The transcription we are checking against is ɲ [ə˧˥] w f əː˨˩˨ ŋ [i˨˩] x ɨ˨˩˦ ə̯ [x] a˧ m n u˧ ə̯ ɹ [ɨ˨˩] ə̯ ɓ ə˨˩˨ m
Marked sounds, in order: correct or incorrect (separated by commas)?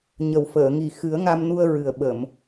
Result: incorrect, correct, incorrect, correct